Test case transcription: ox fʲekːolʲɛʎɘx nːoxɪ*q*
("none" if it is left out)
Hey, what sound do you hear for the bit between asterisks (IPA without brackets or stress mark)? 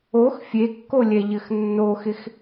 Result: x